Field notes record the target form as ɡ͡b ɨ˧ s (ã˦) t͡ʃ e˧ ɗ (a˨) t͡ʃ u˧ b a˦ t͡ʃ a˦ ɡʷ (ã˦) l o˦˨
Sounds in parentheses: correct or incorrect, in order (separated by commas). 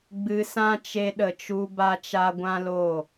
correct, incorrect, correct